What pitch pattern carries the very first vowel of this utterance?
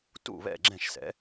falling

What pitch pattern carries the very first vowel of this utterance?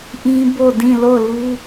high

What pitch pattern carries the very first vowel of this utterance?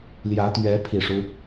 rising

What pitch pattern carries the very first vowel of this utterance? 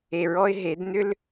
low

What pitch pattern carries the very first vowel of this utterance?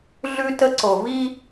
high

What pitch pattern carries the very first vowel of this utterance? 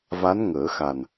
rising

